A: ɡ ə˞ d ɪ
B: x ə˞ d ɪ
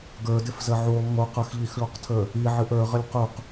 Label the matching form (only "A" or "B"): A